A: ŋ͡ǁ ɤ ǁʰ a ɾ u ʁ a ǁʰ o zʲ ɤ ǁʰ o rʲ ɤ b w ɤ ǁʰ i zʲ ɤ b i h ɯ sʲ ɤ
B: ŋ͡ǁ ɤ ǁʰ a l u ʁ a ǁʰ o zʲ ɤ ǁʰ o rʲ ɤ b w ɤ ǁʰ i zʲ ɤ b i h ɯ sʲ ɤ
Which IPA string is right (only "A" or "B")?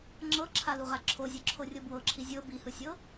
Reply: B